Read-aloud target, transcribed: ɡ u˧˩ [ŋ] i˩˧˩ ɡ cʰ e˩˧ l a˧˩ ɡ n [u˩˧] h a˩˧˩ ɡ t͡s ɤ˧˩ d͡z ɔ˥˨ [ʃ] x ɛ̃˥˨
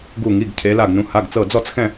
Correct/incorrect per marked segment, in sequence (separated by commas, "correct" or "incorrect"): correct, incorrect, incorrect